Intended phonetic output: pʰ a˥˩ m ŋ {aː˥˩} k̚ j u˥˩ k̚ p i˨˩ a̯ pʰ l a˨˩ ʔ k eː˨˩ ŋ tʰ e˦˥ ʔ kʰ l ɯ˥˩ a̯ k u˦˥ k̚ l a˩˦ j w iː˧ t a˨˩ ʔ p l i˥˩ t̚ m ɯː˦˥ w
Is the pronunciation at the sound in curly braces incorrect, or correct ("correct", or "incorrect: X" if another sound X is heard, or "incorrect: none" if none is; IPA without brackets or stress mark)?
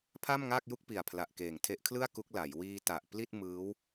correct